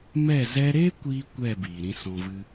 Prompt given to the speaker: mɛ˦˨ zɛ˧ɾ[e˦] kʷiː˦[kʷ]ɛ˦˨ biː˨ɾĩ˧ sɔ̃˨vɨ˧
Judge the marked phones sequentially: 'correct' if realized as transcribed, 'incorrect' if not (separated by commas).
correct, correct